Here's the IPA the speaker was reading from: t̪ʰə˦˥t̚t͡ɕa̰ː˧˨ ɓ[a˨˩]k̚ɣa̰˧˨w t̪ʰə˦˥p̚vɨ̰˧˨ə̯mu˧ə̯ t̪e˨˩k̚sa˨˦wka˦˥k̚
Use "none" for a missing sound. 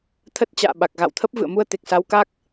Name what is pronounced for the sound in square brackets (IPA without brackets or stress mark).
a˨˩